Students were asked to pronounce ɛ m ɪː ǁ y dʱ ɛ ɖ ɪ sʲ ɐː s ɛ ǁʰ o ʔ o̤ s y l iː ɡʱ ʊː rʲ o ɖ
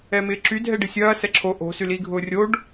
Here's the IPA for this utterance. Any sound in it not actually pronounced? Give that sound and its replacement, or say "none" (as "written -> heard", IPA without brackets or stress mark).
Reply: none